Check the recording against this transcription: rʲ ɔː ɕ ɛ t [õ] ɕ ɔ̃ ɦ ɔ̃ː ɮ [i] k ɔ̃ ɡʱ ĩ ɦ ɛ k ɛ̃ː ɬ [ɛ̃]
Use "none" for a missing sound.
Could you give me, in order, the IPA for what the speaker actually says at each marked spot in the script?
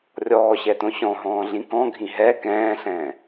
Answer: õ, ĩ, ɛ̃ː

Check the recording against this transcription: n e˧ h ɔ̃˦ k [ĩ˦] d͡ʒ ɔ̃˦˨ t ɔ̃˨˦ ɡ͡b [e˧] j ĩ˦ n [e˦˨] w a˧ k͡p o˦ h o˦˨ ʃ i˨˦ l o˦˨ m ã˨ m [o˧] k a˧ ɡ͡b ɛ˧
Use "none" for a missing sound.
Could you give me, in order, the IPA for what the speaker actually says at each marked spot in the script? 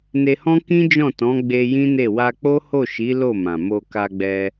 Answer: ĩ˦, e˧, e˦˨, o˧

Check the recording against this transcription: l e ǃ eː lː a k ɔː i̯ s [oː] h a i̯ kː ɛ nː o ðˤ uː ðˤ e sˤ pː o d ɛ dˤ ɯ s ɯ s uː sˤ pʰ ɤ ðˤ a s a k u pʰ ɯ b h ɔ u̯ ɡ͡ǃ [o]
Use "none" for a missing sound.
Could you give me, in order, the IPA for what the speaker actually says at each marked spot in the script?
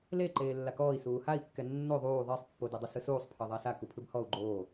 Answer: uː, oː

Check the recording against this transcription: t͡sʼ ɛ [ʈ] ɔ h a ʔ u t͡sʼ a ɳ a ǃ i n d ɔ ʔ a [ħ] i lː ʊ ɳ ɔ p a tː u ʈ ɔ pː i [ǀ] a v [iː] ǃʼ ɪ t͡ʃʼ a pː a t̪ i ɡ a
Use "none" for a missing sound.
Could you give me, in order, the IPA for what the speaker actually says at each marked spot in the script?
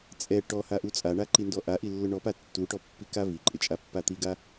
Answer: ʈ, ʔ, k, i

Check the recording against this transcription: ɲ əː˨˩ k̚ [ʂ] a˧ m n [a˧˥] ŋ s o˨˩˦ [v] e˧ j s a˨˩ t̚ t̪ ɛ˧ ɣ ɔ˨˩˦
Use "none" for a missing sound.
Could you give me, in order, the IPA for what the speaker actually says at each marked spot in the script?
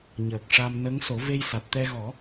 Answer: ʂ, ə˧˥, v

